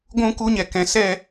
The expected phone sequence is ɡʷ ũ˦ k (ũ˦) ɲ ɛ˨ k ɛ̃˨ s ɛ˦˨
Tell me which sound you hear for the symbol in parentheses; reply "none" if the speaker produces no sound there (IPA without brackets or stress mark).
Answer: u˦